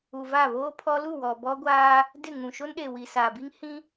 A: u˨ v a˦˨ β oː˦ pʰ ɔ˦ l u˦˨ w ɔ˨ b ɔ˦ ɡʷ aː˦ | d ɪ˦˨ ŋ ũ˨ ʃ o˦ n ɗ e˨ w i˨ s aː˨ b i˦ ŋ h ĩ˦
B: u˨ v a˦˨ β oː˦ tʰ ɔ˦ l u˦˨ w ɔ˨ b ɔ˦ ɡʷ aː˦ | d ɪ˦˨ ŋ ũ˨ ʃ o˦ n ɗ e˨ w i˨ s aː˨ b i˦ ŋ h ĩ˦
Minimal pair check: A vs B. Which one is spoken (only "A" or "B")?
A